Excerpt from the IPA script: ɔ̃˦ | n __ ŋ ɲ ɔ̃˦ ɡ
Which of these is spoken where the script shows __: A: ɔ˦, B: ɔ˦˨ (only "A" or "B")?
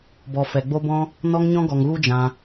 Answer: A